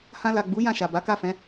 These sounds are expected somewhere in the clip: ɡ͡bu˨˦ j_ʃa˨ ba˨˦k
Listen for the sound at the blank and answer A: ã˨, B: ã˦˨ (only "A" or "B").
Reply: B